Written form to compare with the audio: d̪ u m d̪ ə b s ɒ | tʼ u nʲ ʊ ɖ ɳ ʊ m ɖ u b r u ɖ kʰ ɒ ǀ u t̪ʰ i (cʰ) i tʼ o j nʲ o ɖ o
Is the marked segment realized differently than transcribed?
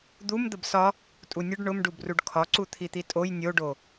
yes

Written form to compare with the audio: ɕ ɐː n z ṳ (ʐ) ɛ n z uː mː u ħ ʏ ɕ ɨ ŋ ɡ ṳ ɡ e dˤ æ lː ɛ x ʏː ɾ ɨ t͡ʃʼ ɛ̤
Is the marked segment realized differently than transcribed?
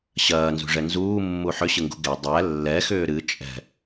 no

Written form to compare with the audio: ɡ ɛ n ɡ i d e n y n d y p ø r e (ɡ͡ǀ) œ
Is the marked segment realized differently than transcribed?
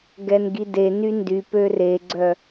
no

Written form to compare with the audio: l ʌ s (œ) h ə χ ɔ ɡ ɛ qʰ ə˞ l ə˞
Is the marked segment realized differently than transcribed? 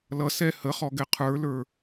yes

